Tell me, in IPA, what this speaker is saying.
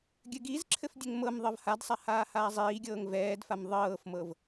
ɡʲɘɡizǁʰɘf dʲɘŋmɤmðˤɤv hadsˤa haːhaːzˤiːɡʲɤːŋ vɛːdfam ðˤɤːfmɤv

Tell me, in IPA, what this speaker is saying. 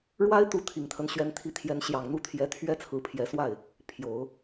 ɻwa˥ɪ̯t̪u˧˥ t̪ʰi˨˩ŋt̪ʰə˦n ɕɥɛ˧˥nt̪ʰi˧˥t̪ʰjɛ˧˥n ɕjɑ˨˩ŋ n̪u˥t̪ʰjɛ˧˥ t̪ʰɥɛ˥t͡sʰɹ̩˧˥pʰjɛ˧˥swa˥˩ɪ̯ | pʰjo˨˩˦ʊ̯

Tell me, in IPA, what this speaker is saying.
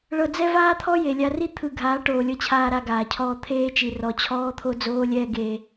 ɭɤ˧d͡zɛ˦ vaː˦t̪ʰɔ˦ je˨lʲa˧ri˦ t̪ʰɯ˧ ɡʱaː˨˦ʈoː˨lʲɤ˧t͡ɕʰaː˧ ɾa˧ɡaː˨cʰɔː˧ t̪ʰeː˧t͡ʃi˨ rɔ˨ t͡ɕʰɔː˦t̪ʰo˦d͡zoː˦lʲɛː˦ ɡeː˧

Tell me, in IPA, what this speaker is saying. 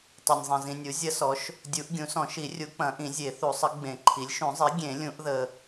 tˤɐ˨nʲzˤɐ̃˨zĩ˨nʲu˩˥ zʲɐ˧˥sɔ˩˥ʃ | dʲu˨˩˦ʔɡʲũ˩˥sɔ̃˨˩˦ʃi˨˩˦ rʲu˨˩˦k͡pɐ̃˨˩˦ʔĩ˨˩˦ zʲe˨˩˦θu˨˩˦sˤə˩˥ ɡ͡bẽ˨˩˦ǃʰi˩˥lʲ ʃũ˨˩˦zˤi˩˥ ɡʲẽ˨˩˦lʲũ˨˩˦ʔðə˨

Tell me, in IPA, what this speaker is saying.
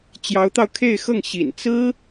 t͡ɕjɑ˧˥ʊ̯t̪ɑ˧ʊ̯kʰe˥˧ɪ̯xɤ˥˩ŋ ɕḭ˨˩n t͡sɹ̩˥

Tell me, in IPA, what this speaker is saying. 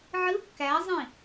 ʕɯ kːæzˤĩ

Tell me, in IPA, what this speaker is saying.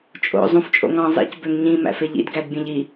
t͡ʃʼo̰ zˤũft͡ʃʼo̰ŋɑ̃ zˤḭc bøŋɲĩ mæ̰feʎḭd ɡædbʲẽʎi

